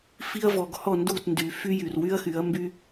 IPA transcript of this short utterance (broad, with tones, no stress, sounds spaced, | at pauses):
f i˧ ɐ̯ v ɔ˨ ɡ h ɔ˦˨ n d u˦˨ t n d y˨ f y˦ j y˨ r w y˦ ɐ̯ x y˨˦ ɐ̯ m b y˦